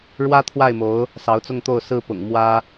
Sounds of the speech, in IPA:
ɻ w ä˥ t̪ʰ w a˥˩ ɪ̯ m o˧˥ ʊ̯ | s ɑ˧˥ ʊ̯ t͡s ʊ˥˧ ŋ t̪ o˥˩ ʊ̯ s ɹ̩˥ p ʊ̰˨˩ ŋ m w ä˥

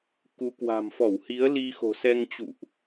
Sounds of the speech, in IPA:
k u˨˦ k w a̤˨˩ m f ɔ˧˩ w h i˨˦ ə̯ l i˧ x o̤˨˩ s ɛ˧ ŋ t͡ɕ ṵ˧˨ ʔ

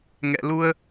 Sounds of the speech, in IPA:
ŋ ɛ̰˧˨ l u˧ ə̯

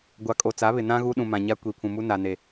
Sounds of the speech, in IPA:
ɡʷ a˨ kʼ o˨ t͡s a˨˦ β ɪ˨ n ã˦ ɣ u˦ ɗ ũ˨ m ã˨ ɲ a˦ kʷ i˨ pʰ ũ˨ m u˦ n a˨ n e˨

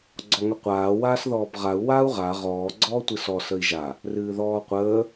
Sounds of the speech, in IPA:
ɡ͡ǀ ɔ ŋ ə qʷ aː w aː s ð ɔː b ʁ a u̯ w aː u̯ ʁ a ʁ ɔː ɡ͡ǀ ɔː tʷ ɨ s ɔ s ə i̯ ʒ a | r ɨː ð ɔː qʷ əː

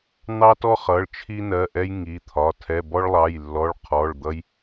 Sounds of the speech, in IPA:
n̪ ɑ˧ t ɔ˧ χ ʌ˩˧˩ ɭ t͡ʃʰ i˧ n ɜ˩˧˩ ʔ ɛ˧ j ŋ i˩˧˩ t̪ʰ ɒ˩˧˩ tʰ ɛ˩˧˩ b ɔ˧ ɭ lˠ ɑ˩˧˩ j lː ɔ˩˧˩ ɭ qʰ ɔ˩˧˩ ɭ d̪ ʌ˧ j

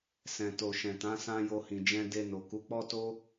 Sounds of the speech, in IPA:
s ɛ̃˨ t o˨ ʃ ɛ̃˨ t ã˨˦ s ã˦ j o˧ h ĩ˨ d͡ʒ ɛ̃˧ d e˧ n o˨ k u˨˦ k͡p ɔ˦ t o˦

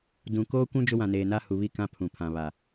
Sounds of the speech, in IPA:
d ũ˨ k oː˦ kʷ ũ˦ d͡ʒ ʊ˦ w ã˨ n eː˨ n a˦ h u˨ β i˦˨ k ã˦ pʰ ũ˨ pʰ ã˨ β a˨

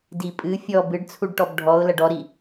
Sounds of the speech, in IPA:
d i pʼ ɨ fʲ ɔ b ɨ ɖ t͡sʰ u ɖ ʈ ɔ b ɖʱ ɔ ʊ̯ l ɐ ɖ ɔ ɾ i

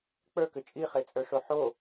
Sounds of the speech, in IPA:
k͡p ə˞ k ʏ t͡ʃʼ i χ e t͡sʼ ə˞ ʂ o ħ o

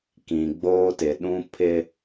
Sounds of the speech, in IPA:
k ĩ˨ ɡ͡b oː˦ t ɪ˨ ɗ ũ˦ pʰ ɪ˦

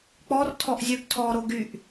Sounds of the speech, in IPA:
k͡p ɔ r tʰ ɔ ʔ zʲ ø ɡ tʰ ɔ ɾ o ɡ y ʔ

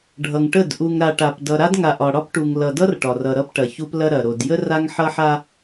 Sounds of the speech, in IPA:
ɖʱ ʌ˨ ŋ ʈ ə˦˨ d ʔ u˨ ŋ ɾ a˨ ʈ a˨ p d ʌ˨ ɾ a˦ d ŋ a˨ ʔ ɒ˨ ɽ ɒ˦ p ʈ u˨ ŋ l ʌ˨ d ʌ˦ r ʈ ɒ˨ r ʌ˨ ɾ ʌ˦ p ʈ ɐ˨ ç u˦ p l ɐ˦ ɾ ɐ˨ ɾ o˨ d j ə˦ r a˦ ŋ ħ ʌ˦ ħ a˦

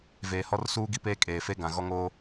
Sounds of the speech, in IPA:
v eː˨ h ɔ˦ r s uː˦ ɡ i˦ p eː˦ kʼ eː˨ f e˦ ɡ ã˨ ɣ ɔ˦ ŋ oː˦

